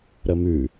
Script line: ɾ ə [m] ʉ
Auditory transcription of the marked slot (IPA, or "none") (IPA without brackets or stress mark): m